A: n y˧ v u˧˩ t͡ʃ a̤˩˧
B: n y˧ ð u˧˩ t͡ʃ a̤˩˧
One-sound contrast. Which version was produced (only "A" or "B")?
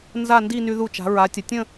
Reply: B